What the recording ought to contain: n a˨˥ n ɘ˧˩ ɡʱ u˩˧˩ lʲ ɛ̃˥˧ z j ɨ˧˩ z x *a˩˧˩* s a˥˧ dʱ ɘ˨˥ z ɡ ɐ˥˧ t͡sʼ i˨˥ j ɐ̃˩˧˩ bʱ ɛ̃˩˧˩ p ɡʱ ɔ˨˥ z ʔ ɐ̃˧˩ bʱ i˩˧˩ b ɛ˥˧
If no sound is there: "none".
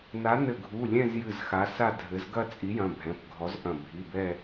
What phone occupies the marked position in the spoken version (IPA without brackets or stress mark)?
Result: a˨˥